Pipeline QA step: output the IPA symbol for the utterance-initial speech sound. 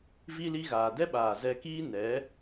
v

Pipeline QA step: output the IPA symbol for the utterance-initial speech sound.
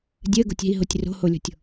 dʲ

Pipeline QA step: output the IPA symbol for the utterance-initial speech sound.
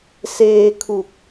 s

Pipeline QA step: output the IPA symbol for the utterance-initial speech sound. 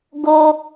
ɡ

